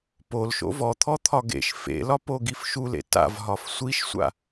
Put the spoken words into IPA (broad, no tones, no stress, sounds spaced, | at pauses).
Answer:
p o l ʃ o̰ v ɔ t̪ʰ ɔ t̪ʰ ɒ ɡ ḛ ʃ f ḛ l ɒ p o ɡ i f ʃ u l ḛ t a̰ v ɦ ɒ f sʷ i ʃ sʷ a̰